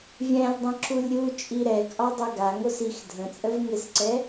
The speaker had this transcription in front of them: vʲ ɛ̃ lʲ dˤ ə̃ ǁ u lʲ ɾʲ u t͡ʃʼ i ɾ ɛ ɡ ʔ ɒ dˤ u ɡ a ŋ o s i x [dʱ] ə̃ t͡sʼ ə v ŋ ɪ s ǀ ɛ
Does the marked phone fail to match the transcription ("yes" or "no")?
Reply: no